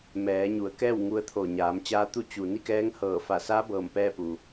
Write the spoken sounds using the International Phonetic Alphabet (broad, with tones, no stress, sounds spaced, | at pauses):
m ɛː˩˧ ɲ u˩˧ ə̯ k ɛː˥˨ w ŋ u˧ ə̯ t̪ʰ o˧˩ ɲ aː˩˧ m t͡ɕ aː˧˥ t̪ u˥˨ t͡ɕ u˩ n i˥˨ k ɛː˧˥ ŋ h ɤː˧˩ f a˧˩ s a˧˥ b ɤː˧˩ m p ɛː˥˨ p u˩